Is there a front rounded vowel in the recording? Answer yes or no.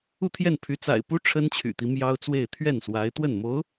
yes